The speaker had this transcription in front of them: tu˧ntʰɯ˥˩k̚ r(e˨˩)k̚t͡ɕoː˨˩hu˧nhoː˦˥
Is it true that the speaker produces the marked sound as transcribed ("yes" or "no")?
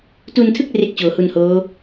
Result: no